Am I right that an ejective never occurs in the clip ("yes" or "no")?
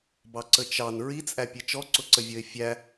no